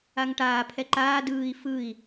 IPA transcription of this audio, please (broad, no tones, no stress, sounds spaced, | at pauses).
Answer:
a ŋ ʈ aː pʰ ɛ ǃ aː d ɯː i̯ f ɯ i̯